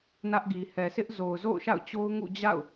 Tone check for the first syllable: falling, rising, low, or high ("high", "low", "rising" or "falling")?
high